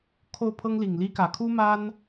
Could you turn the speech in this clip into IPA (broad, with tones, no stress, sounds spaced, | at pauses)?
kʰ o˥˩ ʊ̯ pʰ ɤ˥ ŋ l i˨˩ ŋ l i˥ k ä˨˩ kʰ u˥ m a˥ n